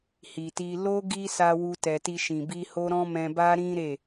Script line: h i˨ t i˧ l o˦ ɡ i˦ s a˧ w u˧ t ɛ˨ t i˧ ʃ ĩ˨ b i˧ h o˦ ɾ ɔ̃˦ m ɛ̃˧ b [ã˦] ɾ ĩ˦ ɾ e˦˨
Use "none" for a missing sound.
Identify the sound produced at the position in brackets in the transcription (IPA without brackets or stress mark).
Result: a˦